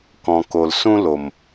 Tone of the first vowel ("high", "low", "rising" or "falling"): low